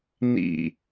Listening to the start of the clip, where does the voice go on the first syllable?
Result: falling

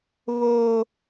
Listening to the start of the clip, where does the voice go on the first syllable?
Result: high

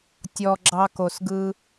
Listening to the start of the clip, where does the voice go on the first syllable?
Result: low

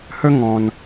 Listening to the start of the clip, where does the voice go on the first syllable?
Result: high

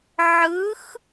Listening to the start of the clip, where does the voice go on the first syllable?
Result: rising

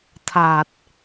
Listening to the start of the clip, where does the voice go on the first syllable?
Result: low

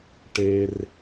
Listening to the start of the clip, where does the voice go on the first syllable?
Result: high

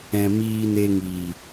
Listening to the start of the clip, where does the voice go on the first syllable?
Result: low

